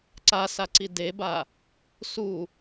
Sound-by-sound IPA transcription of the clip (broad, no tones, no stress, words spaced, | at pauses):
ǀasaǀi deba | su